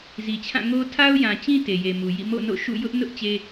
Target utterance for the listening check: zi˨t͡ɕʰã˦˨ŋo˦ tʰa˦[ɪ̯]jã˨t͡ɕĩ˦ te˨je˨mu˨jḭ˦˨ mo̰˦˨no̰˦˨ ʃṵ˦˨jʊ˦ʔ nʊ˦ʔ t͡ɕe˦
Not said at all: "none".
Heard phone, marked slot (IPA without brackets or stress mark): ʊ̯